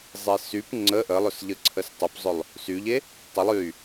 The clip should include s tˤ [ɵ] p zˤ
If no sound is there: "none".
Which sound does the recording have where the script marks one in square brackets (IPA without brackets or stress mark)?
ɵ